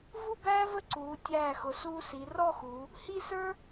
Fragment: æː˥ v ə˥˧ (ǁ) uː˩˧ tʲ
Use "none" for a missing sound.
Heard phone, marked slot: ǀ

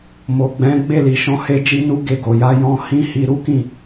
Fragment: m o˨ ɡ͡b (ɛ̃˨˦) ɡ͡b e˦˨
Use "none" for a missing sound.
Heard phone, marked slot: ɛ̃˨˦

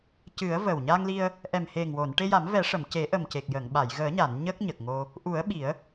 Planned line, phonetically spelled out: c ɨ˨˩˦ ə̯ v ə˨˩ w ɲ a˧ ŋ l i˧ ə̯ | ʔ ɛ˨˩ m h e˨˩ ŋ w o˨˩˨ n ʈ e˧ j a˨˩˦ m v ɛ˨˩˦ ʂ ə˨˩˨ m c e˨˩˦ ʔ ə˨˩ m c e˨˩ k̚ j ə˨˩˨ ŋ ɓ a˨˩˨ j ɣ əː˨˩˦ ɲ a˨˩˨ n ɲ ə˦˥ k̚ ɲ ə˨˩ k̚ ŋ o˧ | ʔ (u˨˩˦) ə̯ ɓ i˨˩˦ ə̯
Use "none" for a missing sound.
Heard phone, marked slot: u˨˩˦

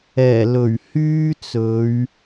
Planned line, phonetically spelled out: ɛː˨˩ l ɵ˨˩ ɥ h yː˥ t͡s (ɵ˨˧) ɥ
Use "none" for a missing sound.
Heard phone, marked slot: ɵ˨˧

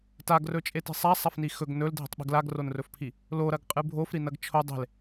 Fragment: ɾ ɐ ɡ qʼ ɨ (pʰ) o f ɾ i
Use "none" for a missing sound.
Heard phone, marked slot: bʱ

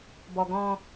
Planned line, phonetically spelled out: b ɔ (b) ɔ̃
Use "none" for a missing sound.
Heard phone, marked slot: ɡ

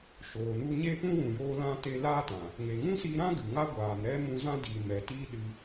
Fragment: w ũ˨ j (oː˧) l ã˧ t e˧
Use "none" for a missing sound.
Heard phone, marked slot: oː˧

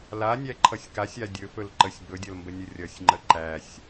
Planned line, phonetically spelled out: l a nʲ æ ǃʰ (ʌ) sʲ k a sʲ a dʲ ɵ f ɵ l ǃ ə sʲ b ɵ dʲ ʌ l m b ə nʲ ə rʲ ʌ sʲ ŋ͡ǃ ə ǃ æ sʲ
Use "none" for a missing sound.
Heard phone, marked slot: ʌ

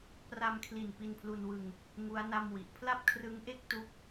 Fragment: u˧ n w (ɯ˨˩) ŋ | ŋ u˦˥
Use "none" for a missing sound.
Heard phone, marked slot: ɯ˧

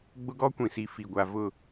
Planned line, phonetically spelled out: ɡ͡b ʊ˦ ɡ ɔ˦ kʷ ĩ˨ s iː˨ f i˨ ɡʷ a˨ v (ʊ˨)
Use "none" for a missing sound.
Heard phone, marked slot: ʊ˦˨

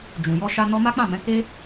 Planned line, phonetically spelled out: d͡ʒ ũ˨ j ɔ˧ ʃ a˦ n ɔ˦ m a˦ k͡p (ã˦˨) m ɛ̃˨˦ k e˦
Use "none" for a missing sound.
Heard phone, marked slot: ã˦˨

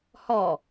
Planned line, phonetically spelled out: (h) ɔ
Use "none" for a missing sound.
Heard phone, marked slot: h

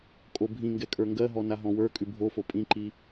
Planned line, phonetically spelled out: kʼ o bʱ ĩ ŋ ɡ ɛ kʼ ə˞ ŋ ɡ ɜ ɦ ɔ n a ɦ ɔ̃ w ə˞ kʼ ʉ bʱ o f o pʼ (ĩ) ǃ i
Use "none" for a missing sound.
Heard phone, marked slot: ĩ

